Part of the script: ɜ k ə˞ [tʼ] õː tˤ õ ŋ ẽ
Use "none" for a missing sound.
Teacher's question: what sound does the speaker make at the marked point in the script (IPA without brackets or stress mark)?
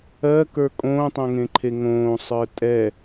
kʼ